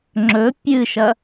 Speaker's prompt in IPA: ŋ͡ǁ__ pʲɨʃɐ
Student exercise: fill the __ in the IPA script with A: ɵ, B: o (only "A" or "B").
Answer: A